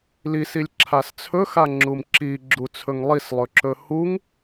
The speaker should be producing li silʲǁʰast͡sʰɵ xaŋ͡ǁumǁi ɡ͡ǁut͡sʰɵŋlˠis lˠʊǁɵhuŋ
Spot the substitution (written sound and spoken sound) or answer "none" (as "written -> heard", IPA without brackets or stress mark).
ʊ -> ɵ